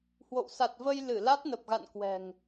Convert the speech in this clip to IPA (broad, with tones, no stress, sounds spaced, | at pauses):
h w o̰˧˨ w s a˨˩ t̚ v ə˧ j l ɨ˧˩ l a˦˥ t̚ n ə˨˩ p̚ ɣ a̰˧˨ n k w ɛ̤˨˩ ŋ